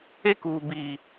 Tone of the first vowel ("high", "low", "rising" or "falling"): high